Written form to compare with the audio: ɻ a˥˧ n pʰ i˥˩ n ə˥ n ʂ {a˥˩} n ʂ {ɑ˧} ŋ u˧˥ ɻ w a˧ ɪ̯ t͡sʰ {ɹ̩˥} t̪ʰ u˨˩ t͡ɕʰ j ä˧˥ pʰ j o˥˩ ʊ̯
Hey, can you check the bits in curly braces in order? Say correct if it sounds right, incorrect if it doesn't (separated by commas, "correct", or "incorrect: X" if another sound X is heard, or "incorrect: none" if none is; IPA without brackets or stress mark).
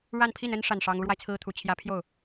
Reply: correct, incorrect: ɑ˥, correct